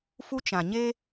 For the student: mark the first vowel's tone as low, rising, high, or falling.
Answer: high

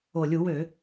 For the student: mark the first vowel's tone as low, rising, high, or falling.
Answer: low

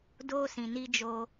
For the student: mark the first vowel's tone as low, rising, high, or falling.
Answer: high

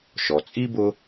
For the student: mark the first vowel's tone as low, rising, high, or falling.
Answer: low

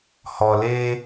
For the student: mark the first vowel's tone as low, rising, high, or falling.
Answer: low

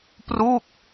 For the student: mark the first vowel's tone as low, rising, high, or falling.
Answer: falling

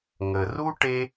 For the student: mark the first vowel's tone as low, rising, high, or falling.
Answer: low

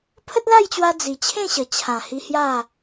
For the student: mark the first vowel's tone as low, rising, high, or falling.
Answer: high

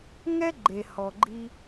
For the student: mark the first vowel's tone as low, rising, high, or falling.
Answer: high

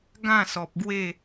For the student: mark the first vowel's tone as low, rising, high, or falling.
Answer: falling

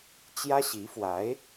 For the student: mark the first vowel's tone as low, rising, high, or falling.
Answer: high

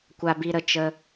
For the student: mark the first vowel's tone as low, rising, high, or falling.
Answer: high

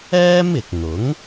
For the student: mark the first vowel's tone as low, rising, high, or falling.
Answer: high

